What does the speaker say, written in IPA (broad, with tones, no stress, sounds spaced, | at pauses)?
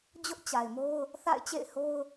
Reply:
d͡ʑ ʊ˦ ʔ t͡ɕ a˨ ɪ̯ m o˦ ʊ̯ | θ a̰˦˨ ɪ̯ t͡ɕ ḛ˦˨ ɪ̯ h o˦ ʊ̯